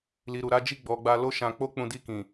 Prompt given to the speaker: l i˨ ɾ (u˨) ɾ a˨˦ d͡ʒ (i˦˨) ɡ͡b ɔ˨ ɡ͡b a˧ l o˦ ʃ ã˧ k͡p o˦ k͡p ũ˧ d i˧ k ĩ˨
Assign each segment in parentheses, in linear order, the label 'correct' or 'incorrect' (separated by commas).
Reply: correct, correct